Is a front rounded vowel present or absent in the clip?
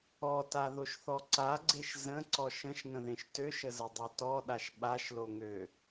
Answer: present